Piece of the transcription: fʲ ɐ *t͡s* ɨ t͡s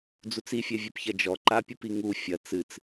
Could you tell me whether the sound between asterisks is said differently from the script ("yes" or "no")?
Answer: no